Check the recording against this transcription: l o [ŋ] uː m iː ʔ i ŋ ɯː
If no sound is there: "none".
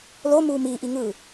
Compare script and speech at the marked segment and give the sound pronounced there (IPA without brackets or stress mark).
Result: m